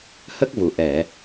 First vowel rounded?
no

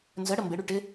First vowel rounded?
no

